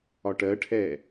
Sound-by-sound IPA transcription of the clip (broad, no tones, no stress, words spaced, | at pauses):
ɒʈɜʈʰɛ